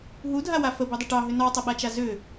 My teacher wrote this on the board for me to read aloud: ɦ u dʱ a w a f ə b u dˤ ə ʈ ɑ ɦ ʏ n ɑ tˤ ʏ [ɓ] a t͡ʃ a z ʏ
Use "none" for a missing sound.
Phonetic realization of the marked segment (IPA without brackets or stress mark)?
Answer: ɓ